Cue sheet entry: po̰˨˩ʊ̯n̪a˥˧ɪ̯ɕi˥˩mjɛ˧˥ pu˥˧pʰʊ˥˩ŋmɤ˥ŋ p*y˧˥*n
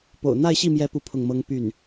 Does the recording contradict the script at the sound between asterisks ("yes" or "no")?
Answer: yes